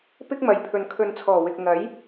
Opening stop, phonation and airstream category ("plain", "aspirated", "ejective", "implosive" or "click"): plain